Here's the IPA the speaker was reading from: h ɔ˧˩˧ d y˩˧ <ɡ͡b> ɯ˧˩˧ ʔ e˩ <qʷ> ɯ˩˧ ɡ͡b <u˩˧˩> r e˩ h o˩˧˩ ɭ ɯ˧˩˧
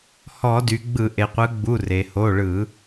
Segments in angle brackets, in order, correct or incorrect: correct, correct, correct

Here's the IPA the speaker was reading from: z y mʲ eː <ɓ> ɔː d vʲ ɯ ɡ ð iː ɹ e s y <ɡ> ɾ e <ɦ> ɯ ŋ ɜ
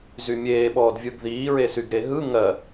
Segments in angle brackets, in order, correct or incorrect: correct, correct, correct

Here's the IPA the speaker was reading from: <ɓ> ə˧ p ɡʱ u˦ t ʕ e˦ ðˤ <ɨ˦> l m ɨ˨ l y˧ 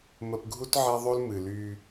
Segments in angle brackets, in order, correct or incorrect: incorrect: m, incorrect: ʉ˦

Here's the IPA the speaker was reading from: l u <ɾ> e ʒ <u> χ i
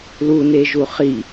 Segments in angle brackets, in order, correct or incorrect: incorrect: n, correct

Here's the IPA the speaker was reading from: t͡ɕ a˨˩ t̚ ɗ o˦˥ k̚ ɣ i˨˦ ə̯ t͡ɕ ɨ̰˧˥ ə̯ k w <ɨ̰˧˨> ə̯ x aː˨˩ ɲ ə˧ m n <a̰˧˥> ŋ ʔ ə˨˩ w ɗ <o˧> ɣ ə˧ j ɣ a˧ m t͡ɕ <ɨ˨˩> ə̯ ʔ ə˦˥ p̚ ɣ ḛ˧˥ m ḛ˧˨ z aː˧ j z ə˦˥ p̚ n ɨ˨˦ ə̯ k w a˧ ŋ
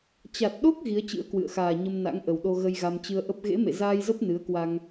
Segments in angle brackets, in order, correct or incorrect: correct, correct, correct, incorrect: ɨ˧

